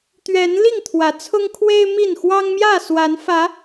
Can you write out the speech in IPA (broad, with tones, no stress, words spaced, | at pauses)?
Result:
t̪ɥɛ˨˦n li˥˨ŋt̪ʰwä˨˦t͡sʰʊ˦ŋkʰwe˦ɪ̯ mi˥˨n xwɑ˦ŋmjä˥˨swa˨˦nfä˨˦